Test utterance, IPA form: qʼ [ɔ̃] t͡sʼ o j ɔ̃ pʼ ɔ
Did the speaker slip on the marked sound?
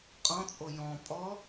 no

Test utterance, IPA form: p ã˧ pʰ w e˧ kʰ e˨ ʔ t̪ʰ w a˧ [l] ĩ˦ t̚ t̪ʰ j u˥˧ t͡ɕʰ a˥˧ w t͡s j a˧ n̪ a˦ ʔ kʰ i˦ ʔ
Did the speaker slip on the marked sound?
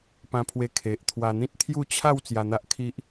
yes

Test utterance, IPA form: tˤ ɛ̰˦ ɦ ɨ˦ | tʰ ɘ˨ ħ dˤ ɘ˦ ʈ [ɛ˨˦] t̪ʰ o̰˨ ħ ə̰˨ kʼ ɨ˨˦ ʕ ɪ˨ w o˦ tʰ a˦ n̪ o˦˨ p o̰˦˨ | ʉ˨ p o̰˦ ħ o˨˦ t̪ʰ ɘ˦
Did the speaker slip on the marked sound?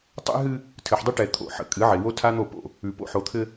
yes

